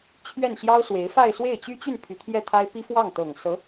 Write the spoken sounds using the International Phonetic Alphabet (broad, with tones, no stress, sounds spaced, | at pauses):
t͡ɕʰ ɥ ɛ˥˩ n ɕ j ɑ˥ ʊ̯ s w e˧˥ ɪ̯ f a˥˧ ɪ̯ s w e˥˩ ɪ̯ t͡ɕ y˥ t͡ɕ y˥˩ n pʰ y˧˥ t̪ʰ j ɛ˥˩ t̪ʰ a˥ ɪ̯ p i˥ f w ɑ˥˩ ŋ t̪ ɤ˨˩ ŋ s ɤ˧˥